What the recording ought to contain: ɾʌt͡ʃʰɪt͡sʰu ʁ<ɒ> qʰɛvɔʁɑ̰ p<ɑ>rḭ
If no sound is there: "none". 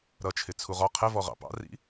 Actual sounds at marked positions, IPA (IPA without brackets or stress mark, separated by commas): ɒ, ɑ̰